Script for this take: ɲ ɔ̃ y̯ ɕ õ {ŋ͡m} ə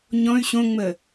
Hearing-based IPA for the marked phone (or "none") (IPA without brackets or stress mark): ŋ͡m